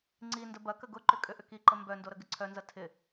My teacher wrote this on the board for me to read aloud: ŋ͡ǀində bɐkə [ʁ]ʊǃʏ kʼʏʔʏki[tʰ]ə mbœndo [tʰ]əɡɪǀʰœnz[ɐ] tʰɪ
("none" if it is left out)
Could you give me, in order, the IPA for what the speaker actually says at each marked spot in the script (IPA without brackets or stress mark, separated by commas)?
ɡ, ǃ, ɾ, ɐ